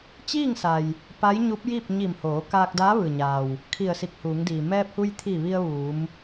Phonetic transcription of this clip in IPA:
t͡ɕiː˥˨ŋsa˩j | pa˧˥jɲu˧˥p̚ji˥˨p̚ ɲi˧˩mhoː˩˧ kaː˧k̚daː˧˥ʋɯː˩ɲaː˩w | kʰi˧˩ə̯si˧˩k̚huː˩˧ŋdiː˩ mɛː˧p̚hu˧jt̪ʰiː˧˩ ʋi˧ə̯ ʋuː˩˧m

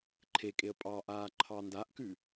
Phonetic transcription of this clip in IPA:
ǃʰekʼeə̯ pʼɑʔaː ǃʰɑndaʔkʉ

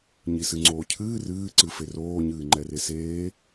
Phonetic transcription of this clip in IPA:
ɲisɨŋ͡ǀoːcʰɨː rɨːǀɨ feroːɲɨː ŋ͡ǃɛreseː

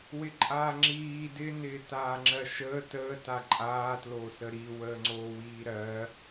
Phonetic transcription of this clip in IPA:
wɪǃʼaːŋ͡ǁiː dɪ nɪːtaːŋ͡ǁɜʃəː təː taǃʼaː tlosəɾi wəːŋ͡ǀoːwiːɾɜ

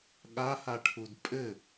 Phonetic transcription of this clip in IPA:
ɠahaʈʰud pʼɘ

